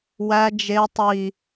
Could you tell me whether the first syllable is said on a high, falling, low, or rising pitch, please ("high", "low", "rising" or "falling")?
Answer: high